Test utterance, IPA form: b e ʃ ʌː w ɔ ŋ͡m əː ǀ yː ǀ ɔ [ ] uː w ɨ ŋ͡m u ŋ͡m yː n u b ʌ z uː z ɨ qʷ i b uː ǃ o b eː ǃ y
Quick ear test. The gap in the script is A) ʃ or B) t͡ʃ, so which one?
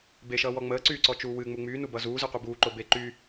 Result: B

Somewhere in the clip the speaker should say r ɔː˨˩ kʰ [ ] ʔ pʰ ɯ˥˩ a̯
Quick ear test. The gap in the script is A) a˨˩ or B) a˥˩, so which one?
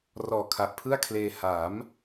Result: A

